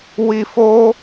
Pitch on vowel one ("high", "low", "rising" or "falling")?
high